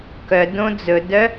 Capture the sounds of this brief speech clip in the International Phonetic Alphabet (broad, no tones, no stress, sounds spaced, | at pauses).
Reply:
k œ d õ d͡z ɵ d œ